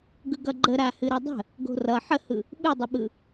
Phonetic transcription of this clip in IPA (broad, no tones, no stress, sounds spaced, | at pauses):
ɡ ɯ ɡ ʌ ɡ͡ǃ ə ɾ a h ɨ ɾ ʌ dˤ ə̤ | ɡ o̤ r ʌ ħ ə h ɯ | ɓ ɨ dˤ ə ɓ ɯ